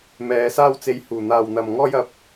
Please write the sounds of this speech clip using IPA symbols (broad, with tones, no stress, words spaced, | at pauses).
mɛː˨˧ saː˧wt͡se˨˧j huː˨˩n̪aː˨wn̪ɐ˨m ŋɔː˧jɐ˨˥p̚